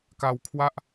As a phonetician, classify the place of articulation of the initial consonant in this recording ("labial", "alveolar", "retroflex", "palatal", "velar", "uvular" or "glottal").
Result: velar